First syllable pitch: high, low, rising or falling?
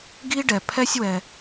high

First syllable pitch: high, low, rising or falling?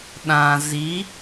low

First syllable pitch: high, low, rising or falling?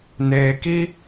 low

